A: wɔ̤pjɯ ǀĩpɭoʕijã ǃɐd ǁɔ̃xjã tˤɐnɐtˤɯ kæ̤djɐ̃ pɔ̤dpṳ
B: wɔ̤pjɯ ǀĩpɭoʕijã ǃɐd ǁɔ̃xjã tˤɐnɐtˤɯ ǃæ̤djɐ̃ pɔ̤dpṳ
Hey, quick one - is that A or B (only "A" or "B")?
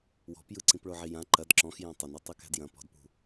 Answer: A